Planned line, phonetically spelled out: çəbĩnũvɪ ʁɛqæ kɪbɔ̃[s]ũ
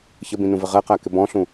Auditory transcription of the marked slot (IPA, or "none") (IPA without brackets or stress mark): ɬ